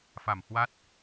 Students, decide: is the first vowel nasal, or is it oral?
oral